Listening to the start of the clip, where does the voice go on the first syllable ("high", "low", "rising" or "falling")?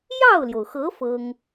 falling